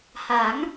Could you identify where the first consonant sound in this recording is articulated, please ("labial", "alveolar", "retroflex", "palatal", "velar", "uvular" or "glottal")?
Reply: glottal